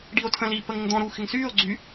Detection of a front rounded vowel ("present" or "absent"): present